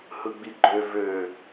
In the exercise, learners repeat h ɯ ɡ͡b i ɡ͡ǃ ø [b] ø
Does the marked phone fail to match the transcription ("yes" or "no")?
yes